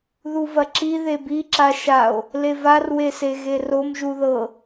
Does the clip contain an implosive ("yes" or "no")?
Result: no